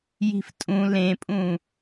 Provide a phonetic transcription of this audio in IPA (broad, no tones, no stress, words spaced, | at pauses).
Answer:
ji̤ftʼũ lẽpʼũ